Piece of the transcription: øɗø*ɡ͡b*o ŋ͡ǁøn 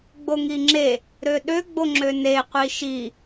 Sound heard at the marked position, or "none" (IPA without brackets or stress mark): ɡ͡b